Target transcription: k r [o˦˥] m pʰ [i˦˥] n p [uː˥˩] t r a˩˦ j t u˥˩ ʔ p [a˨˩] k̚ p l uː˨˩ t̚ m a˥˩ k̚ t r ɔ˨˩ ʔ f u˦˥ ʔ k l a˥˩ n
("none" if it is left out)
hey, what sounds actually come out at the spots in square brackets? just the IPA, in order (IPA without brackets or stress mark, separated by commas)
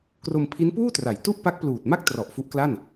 o˧, i˦˥, uː˥˩, a˦˥